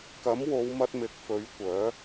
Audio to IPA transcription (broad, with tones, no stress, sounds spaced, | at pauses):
k ɐ˨˥ m w o˨˧ w m ɐ˧ t̚ m ɪ˨˥ k̚ f ɵ˨˥ ɥ kʷ œː˨˥